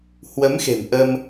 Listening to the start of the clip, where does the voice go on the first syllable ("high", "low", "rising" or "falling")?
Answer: rising